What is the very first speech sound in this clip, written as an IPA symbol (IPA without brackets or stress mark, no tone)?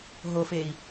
ɦ